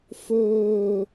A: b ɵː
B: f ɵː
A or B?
B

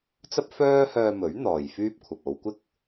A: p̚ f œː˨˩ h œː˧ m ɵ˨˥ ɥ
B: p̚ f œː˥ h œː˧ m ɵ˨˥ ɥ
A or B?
B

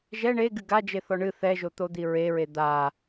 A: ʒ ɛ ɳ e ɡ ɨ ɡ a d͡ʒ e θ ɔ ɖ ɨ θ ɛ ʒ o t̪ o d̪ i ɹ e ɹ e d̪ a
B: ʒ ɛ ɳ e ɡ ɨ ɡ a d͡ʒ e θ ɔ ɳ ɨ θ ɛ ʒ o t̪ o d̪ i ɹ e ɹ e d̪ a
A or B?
B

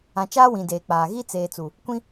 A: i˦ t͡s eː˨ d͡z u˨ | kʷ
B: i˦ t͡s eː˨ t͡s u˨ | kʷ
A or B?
B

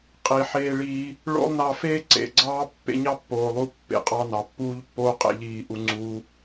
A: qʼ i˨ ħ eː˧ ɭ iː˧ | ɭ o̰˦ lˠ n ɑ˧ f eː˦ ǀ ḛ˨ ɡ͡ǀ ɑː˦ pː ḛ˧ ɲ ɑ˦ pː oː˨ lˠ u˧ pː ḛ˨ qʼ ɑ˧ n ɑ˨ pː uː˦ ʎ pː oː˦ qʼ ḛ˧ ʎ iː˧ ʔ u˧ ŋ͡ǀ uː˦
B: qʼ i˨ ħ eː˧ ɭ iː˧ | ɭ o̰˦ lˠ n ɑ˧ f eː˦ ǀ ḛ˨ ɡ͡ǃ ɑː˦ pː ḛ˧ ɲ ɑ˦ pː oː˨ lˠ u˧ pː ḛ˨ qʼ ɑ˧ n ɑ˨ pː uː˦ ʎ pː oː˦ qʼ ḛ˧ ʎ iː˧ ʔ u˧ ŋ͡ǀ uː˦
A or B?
A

